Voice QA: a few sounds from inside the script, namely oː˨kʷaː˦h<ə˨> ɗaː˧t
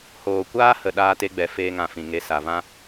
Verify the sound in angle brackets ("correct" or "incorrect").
correct